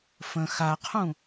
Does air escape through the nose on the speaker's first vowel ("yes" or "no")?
yes